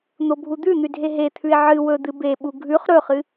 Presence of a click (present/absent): absent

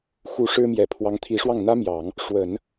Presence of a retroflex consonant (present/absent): present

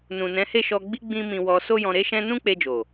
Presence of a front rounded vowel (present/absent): absent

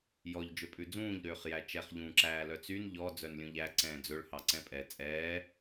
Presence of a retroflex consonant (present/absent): present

